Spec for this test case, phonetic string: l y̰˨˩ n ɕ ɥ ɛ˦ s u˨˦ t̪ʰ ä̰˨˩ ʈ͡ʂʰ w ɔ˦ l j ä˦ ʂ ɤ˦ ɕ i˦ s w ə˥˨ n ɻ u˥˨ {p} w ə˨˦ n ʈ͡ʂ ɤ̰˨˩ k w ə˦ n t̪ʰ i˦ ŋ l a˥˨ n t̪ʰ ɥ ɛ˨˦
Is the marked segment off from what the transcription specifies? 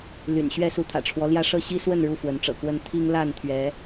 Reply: yes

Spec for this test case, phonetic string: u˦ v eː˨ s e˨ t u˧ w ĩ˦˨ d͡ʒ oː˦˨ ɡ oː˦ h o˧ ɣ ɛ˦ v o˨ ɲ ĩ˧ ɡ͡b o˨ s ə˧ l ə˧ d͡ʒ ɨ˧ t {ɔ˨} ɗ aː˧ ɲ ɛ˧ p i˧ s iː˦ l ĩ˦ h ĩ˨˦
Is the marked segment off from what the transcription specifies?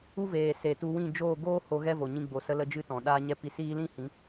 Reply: yes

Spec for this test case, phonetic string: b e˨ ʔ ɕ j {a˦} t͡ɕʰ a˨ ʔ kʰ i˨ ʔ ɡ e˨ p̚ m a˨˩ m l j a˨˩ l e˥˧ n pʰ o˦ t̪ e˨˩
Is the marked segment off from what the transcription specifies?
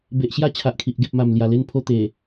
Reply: no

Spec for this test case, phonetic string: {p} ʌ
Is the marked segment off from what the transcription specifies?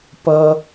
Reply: no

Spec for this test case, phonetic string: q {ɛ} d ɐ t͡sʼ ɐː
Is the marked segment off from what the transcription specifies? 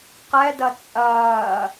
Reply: no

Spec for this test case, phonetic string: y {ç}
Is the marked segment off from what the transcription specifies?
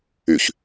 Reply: no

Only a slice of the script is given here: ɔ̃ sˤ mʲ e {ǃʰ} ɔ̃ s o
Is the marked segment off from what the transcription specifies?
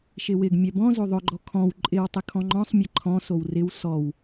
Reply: no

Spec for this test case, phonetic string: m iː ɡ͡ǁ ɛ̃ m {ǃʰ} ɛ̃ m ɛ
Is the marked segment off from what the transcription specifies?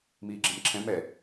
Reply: yes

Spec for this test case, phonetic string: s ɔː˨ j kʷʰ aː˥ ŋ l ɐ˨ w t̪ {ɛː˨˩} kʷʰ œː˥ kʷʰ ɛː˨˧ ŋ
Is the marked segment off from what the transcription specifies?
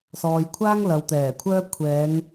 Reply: no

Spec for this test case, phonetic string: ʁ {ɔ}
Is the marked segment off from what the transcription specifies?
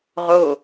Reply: yes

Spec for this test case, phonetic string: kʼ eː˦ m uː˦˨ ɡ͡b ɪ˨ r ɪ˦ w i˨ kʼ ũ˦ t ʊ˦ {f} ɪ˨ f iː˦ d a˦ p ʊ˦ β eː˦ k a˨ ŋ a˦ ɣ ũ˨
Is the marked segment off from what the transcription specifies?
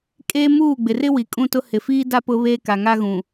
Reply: yes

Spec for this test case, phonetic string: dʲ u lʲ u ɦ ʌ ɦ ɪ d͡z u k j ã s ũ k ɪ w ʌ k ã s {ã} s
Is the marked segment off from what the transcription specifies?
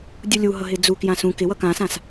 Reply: no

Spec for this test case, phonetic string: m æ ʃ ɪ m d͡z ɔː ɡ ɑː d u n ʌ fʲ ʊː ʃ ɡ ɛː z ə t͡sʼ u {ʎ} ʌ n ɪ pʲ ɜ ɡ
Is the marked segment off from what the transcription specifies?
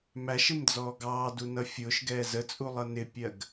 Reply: yes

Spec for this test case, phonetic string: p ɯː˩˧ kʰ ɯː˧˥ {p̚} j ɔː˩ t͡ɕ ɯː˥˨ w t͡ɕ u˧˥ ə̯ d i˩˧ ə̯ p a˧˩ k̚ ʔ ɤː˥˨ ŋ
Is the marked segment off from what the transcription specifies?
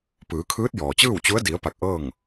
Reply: yes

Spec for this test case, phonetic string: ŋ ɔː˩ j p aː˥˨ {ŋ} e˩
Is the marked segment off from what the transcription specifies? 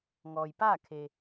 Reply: yes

